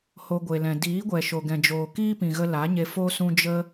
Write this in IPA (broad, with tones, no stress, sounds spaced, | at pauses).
h o˧ ɡʷ e˨ l ɛ̃˨ d iː˨˦ ɡʷ ɛ˨ ʃ o˨ ɡ ɛ̃˨ d͡ʒ oː˨ k iː˦ p ĩ˨ ɣ ə˧ l a˨˦ ɲ e˧ f o˦ s ũ˦ d͡ʒ ə˦